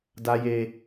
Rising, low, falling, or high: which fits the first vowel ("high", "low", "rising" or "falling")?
high